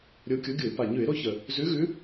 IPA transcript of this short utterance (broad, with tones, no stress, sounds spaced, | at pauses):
ɾʲ o˨˦ kʲ o˨˦ ɡʲ ʊ˧˩˧ ɪ̯ p a˨˩ ɲ ʉ˧˩˧ ɪ̯ ɾ o˥˧ ç ə˨˩ | z ʉ˨˦ ɣ ʉ˨˦